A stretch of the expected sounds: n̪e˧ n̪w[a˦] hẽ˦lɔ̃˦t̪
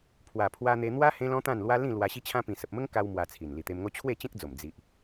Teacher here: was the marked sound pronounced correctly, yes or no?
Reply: yes